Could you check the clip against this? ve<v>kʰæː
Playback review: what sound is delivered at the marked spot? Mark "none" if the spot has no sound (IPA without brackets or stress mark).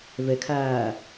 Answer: none